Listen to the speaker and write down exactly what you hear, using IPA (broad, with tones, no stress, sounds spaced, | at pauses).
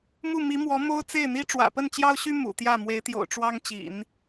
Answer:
m u˥˩ m i˧˥ m w ɔ˧˥ m o˥ ʊ̯ t͡s e˥˩ ɪ̯ n̪ i˥ ʈ͡ʂ w ä̰˨˩ p ə˥˩ n t͡ɕ j ɑ˥ ʊ̯ ɕ y˥ m ṵ˨˩ t̪ j ä˥˩ m w e˧˥ ɪ̯ t̪ j o̰˨˩ ʊ̯ ʈ͡ʂ w ɑ˥ ŋ t͡ɕ ḭ˨˩˦ n